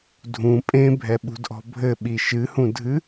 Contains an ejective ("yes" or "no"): yes